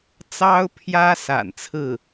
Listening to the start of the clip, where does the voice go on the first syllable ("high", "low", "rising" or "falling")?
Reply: high